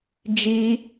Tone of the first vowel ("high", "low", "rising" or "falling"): high